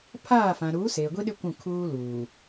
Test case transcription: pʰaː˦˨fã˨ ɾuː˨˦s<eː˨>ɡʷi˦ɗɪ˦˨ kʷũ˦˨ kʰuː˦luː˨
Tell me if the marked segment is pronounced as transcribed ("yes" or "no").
yes